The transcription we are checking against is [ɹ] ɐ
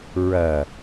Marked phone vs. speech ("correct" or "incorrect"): correct